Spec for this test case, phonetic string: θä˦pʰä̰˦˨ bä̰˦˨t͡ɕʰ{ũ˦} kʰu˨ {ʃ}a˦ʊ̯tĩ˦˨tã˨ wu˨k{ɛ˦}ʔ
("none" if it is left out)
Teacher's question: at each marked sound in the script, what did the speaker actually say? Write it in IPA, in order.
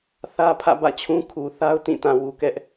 ũ˦, θ, ɛ˦

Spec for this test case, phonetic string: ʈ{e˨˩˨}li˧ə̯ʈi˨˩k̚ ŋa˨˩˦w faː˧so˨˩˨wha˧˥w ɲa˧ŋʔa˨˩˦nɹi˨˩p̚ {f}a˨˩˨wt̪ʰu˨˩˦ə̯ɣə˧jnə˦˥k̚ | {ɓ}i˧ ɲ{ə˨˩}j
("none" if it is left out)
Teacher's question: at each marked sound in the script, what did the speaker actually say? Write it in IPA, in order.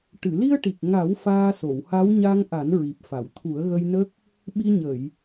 ɨ˨˩˨, f, ɓ, ə˨˩˨

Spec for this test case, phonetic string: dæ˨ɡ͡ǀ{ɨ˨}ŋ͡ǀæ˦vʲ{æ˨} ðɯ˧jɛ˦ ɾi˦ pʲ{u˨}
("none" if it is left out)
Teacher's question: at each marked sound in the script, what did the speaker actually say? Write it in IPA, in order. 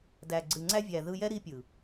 ɨ˨, æ˨, ɯ˨

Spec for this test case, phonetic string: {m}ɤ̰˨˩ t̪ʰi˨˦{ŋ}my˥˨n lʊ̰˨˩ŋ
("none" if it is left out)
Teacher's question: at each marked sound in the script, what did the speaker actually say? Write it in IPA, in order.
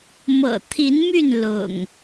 m, n

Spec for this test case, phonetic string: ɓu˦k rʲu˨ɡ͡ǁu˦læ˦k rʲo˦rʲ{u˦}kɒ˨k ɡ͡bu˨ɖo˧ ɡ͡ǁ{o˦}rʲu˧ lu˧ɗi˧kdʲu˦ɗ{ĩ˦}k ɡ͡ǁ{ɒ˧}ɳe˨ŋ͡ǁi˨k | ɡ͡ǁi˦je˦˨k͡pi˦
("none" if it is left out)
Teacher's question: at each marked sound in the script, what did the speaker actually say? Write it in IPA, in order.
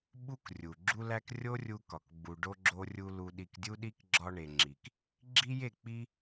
u˧, o˧, i˦, ɒ˧

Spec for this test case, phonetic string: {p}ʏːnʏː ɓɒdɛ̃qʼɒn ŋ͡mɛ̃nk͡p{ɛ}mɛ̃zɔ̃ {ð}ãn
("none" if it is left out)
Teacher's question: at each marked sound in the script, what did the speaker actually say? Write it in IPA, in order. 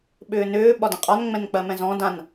ɓ, ɜ, d

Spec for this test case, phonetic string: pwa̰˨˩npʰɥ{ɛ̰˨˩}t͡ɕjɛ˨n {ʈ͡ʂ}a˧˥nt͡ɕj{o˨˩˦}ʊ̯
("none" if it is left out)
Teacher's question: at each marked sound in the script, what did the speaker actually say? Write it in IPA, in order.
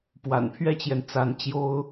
ɛ˥, t͡s, o˥

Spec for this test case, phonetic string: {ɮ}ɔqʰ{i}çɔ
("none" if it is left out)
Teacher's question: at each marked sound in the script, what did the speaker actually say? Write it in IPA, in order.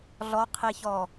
ɮ, i

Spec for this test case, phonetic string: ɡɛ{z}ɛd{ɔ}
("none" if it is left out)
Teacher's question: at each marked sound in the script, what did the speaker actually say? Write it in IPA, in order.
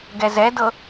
z, ɤ

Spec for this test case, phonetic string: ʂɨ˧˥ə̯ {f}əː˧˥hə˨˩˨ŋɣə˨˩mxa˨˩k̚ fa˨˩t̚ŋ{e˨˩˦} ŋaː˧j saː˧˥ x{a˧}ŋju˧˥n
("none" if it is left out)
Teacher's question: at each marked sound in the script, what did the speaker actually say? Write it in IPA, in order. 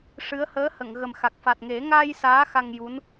h, e˨˩˦, a˧

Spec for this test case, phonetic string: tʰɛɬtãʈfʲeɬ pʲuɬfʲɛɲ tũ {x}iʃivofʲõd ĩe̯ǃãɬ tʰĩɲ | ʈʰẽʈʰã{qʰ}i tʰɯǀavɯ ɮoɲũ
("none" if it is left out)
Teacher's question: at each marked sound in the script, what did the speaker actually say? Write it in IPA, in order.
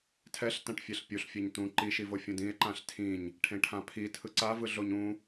ǃ, pʰ

